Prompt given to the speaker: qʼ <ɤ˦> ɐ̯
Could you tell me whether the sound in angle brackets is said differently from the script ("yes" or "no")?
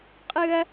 yes